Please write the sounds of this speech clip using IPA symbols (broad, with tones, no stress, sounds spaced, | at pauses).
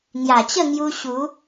ŋ j a˨˩ t͡ɕ ə˥˧ ŋ j u˧ ɕ u˨˦